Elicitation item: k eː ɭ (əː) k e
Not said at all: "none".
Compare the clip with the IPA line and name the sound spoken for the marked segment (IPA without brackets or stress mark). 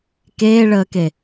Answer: əː